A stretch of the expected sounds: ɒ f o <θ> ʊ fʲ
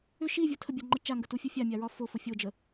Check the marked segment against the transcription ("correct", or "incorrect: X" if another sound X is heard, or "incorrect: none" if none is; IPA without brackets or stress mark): incorrect: f